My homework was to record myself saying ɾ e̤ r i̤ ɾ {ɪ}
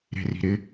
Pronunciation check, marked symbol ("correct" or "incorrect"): correct